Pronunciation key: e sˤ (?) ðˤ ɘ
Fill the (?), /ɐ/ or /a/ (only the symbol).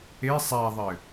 a